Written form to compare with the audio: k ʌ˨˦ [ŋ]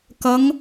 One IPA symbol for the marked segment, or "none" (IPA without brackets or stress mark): ŋ